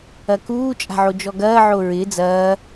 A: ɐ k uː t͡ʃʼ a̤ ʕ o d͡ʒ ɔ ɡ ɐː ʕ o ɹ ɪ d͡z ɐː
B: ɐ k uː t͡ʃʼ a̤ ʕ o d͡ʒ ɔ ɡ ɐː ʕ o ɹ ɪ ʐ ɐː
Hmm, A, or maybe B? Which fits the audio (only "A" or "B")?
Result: A